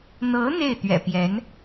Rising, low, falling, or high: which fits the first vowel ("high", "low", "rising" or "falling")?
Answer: rising